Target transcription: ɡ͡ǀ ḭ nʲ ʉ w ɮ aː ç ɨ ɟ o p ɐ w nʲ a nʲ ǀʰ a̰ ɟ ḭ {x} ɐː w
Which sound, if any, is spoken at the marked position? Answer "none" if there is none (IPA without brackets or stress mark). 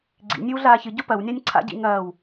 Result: ŋ